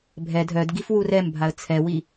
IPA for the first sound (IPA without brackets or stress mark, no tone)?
bʱ